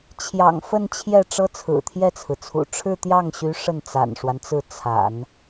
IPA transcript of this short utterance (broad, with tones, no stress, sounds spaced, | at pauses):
t͡ɕʰ j ɑ̰˨˩ ŋ f ə˥˧ n t͡ɕʰ j ɛ˥˩ ʈ͡ʂ ɤ˥ t͡sʰ ɹ̩˨˩ t̪ʰ j ɛ˥˩ t͡sʰ ɹ̩˩ t͡sʰ ṵ˨˩ ʈ͡ʂʰ ɻ̩˥˧ t̪ j ɑ˥˩ ŋ ɕ y˧˥ ʂ ə˥˩ n t͡s a̰˨˩ n ʂ w a˦ n t͡s ɹ̩˥˩ t͡sʰ a̰˨˩˦ n